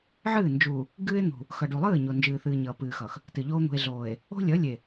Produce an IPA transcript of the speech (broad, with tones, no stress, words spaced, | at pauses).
ʕɨː˦˨ nd͡ʒu˨ | ɡɨː˦e̯n̪ṳ˨ | xʌ˨ɖu˨lˠɨː˦˨ ɲo˨nd͡ʒɨː˨θɨː˨ ɲʌː˨pɨː˨xʌ˨x | tɨ˨ʎoː˦ n̪ṳ˨e̯ɮoː˨e̯ | o̤˦lʲʌ˨˦lʲe˨